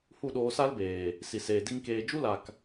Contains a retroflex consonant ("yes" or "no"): no